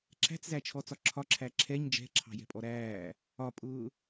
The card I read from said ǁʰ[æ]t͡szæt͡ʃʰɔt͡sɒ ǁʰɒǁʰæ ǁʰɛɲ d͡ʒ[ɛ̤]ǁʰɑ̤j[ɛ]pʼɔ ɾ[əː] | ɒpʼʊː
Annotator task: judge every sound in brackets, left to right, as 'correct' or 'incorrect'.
incorrect, correct, incorrect, incorrect

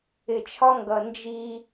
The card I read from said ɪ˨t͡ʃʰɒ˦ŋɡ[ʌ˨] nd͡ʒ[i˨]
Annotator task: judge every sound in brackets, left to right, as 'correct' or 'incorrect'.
correct, incorrect

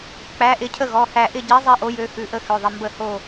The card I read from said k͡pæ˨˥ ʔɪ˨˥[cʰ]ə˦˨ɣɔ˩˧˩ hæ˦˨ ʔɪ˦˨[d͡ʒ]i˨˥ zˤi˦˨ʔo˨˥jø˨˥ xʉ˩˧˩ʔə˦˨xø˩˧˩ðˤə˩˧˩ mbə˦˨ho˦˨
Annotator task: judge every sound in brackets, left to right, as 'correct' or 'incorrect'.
correct, incorrect

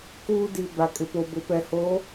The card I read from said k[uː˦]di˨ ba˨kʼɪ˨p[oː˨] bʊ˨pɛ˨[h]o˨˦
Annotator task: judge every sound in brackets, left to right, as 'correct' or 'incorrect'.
correct, incorrect, correct

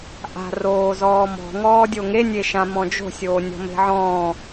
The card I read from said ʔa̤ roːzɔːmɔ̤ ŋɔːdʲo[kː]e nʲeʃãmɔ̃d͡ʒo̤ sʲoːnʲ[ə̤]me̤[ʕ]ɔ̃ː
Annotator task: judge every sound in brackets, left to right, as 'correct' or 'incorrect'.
incorrect, incorrect, correct

